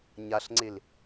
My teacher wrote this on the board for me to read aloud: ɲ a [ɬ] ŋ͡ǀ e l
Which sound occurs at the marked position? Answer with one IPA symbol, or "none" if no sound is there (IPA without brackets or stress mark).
ɬ